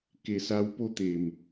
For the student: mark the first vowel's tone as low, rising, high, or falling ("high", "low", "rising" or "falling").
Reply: low